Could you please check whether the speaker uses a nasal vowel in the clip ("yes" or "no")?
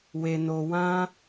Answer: yes